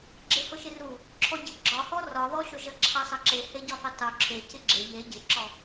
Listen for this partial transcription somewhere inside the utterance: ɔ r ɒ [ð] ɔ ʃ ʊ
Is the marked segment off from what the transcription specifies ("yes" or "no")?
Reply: no